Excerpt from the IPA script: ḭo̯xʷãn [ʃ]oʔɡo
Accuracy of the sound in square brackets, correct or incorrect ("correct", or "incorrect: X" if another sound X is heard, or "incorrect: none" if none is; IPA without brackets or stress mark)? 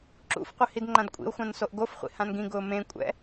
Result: incorrect: s